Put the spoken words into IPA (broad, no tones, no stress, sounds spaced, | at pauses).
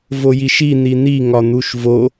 v o j i ʃ i n̪ i n̪ i ŋ ɒ n̪ u ʃ v o